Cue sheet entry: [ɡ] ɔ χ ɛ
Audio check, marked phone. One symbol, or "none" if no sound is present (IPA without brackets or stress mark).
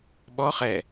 ɓ